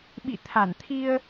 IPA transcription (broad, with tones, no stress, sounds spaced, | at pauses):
ɓ ḭ˧˨ t̪ʰ a˧˩ n t̪ʰ i˧ ə̯